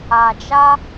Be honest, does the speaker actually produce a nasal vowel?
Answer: no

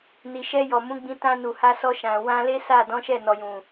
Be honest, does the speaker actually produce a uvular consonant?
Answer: no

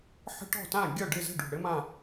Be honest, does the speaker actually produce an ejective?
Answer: no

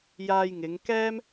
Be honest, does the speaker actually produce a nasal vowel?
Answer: no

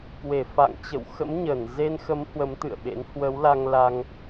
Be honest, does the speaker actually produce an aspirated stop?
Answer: no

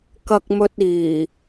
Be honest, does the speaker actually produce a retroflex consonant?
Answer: no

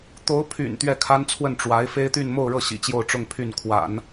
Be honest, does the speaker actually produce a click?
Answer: no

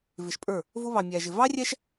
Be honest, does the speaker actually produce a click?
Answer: no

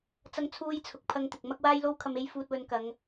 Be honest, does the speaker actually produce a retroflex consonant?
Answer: no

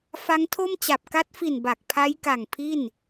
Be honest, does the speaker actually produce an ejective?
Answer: no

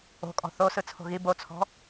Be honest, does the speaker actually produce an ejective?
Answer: yes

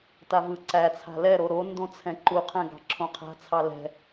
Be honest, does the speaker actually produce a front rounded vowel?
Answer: no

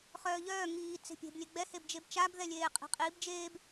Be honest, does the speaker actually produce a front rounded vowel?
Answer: yes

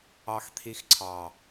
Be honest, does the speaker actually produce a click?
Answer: yes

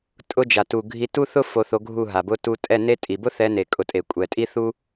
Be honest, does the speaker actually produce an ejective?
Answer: yes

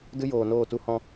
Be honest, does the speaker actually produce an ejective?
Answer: no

